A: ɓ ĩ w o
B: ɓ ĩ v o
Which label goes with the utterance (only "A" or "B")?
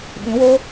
A